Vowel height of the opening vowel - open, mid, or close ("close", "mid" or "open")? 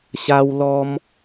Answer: open